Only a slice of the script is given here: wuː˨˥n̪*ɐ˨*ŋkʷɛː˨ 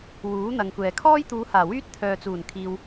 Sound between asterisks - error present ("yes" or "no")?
no